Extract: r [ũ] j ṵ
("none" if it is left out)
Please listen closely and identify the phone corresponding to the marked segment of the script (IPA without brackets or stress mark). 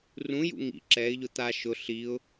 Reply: ũ